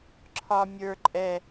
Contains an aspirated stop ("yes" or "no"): yes